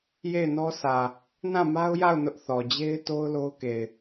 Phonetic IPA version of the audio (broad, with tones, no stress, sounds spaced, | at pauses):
j e˦˨ ɪ̯ n ɔ˦ s ä˨ | n ã˦˨ m a˦ ʊ̯ j a˦˨ ʊ̯ n ʊ˦ ʔ θ ɔ˨ d͡ʑ e˦ ɪ̯ t o˦ ʊ̯ l o˦ ʊ̯ k e˨ ɪ̯